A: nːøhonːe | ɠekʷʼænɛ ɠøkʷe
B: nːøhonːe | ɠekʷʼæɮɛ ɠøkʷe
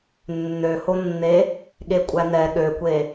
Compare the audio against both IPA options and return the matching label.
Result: A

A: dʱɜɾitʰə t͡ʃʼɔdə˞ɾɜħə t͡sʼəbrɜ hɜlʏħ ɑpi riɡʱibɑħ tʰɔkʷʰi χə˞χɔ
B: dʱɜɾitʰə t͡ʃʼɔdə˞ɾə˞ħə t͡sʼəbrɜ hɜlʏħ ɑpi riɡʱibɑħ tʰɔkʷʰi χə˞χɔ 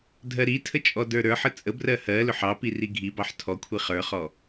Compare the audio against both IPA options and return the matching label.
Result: B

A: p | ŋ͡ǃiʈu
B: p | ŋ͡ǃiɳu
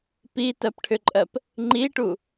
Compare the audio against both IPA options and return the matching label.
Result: A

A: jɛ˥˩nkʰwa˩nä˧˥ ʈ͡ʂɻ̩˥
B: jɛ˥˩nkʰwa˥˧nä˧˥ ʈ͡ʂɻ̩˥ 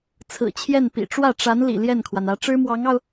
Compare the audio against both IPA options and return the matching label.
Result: A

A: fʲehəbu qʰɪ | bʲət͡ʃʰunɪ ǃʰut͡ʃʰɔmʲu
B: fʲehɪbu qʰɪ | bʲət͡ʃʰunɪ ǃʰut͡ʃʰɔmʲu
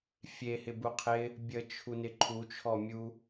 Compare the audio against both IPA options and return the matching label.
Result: B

